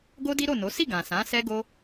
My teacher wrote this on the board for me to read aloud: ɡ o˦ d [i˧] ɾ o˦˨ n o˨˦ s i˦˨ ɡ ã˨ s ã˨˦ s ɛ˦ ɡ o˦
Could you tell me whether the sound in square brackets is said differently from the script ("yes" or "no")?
yes